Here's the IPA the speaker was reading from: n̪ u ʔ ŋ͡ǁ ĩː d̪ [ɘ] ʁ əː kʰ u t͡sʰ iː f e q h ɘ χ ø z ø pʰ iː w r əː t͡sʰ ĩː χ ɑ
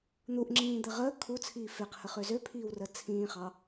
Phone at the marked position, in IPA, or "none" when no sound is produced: ɘ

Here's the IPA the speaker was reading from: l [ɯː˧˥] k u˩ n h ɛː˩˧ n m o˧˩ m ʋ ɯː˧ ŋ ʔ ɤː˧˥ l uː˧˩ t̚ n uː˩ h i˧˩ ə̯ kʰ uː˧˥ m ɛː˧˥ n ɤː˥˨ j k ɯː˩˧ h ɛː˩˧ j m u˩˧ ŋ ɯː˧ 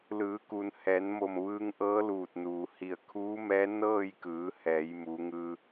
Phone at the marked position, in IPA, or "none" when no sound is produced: ɯː˩˧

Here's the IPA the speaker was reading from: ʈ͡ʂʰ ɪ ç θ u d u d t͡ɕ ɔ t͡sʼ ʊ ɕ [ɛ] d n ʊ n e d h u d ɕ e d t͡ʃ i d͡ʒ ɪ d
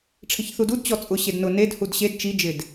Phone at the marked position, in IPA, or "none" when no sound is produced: e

